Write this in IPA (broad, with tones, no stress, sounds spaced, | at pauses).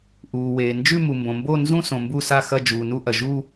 ʔ uː˩ w eː˩ n d͡ʒ ʉ˦˨ m u˩ m b õ˩ m b o˦˨ n z ũ˦˨ s õ˩ m b u˦˨ s a˦˨ x ɐ˦˨ d͡ʒ uː˩ n u˦˨ ʔ ɐ˩ ʒ u˦˨